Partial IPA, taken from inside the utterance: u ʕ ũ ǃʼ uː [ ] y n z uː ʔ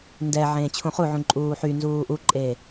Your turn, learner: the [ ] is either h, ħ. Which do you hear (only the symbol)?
ħ